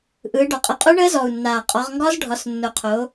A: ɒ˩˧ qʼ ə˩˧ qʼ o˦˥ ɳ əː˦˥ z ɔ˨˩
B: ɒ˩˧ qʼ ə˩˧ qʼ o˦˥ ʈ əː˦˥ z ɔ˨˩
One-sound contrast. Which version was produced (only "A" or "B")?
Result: A